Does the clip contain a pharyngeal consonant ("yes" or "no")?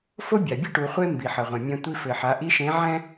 yes